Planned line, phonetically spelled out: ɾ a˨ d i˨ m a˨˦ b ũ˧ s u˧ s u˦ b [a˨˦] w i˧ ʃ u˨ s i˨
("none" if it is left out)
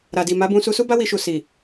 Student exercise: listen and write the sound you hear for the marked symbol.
a˦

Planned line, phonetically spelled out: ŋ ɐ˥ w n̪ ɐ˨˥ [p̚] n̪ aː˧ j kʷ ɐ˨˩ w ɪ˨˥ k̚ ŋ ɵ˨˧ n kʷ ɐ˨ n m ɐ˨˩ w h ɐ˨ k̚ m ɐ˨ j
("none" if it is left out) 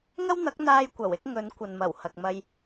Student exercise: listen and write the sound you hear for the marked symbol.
k̚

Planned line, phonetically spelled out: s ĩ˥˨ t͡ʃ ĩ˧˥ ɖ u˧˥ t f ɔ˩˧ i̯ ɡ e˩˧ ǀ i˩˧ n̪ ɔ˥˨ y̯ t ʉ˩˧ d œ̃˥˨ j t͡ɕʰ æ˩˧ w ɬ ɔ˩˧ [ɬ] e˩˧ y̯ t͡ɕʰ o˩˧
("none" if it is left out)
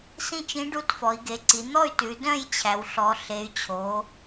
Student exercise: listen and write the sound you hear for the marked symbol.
ɬ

